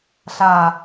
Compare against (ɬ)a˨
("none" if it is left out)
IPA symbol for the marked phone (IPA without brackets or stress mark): ɬ